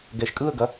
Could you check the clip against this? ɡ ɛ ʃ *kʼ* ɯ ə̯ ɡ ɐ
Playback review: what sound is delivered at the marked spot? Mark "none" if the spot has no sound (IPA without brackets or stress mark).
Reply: kʼ